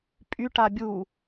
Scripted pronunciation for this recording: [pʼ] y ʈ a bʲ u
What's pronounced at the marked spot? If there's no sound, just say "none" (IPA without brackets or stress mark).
pʼ